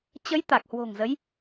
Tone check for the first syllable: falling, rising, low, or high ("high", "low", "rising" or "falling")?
rising